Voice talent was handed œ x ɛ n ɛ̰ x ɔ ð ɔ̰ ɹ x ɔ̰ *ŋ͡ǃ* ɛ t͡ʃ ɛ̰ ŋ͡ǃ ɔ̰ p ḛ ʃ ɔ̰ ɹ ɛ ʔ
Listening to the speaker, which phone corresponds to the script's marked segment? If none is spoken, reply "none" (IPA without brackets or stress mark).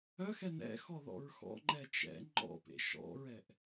ŋ͡ǃ